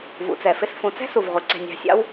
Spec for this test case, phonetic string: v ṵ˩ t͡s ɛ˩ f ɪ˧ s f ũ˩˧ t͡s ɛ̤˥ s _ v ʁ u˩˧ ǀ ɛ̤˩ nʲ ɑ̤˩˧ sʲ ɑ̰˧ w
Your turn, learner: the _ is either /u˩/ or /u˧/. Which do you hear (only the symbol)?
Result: u˩